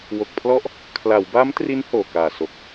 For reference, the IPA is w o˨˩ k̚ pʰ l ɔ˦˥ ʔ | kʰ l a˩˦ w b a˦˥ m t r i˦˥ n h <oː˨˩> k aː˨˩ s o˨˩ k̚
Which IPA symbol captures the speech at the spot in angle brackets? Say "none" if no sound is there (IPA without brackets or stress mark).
oː˨˩